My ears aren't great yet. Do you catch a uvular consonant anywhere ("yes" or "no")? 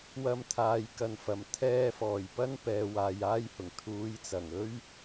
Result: no